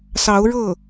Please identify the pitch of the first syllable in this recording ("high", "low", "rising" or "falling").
rising